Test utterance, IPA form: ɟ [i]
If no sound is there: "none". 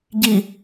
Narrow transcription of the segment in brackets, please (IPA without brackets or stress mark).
i